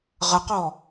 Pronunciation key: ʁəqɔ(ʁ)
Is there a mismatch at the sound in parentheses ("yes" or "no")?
yes